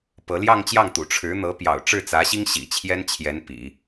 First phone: p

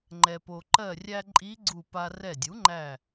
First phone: ŋ͡ǃ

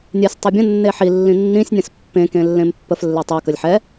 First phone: nʲ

